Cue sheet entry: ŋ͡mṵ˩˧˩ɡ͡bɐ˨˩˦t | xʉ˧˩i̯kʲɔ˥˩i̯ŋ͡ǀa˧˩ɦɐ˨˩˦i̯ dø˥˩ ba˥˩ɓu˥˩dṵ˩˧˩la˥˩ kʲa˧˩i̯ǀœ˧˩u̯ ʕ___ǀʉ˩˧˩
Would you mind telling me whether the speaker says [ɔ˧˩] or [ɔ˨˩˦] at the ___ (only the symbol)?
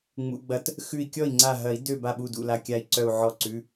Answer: ɔ˧˩